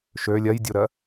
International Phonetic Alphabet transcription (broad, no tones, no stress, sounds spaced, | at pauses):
ʃ ø lʲ ɜ j dʲ u ɾ ɜ